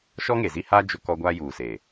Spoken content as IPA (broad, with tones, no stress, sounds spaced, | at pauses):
ʃ ɔ˦ ŋ e˨ z i˦ h aː˦ d͡ʒ ʊ˦ k ɔ˦ ɡʷ aː˦ j uː˨ s eː˨